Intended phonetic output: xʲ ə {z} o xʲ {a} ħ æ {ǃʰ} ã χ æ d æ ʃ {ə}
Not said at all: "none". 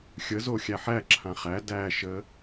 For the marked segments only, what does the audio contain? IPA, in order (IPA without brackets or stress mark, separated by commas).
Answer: z, æ, ǁʰ, ə